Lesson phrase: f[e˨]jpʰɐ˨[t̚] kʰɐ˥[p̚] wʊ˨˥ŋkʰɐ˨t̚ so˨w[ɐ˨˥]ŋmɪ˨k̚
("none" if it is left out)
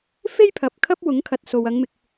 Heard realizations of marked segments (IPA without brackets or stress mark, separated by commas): e˥, p̚, p̚, ɐ˨˧